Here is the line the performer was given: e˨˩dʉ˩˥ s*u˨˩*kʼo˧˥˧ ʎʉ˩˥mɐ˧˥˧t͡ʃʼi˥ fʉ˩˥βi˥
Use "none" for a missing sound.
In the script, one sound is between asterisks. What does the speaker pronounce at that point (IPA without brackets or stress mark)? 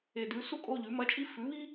u˥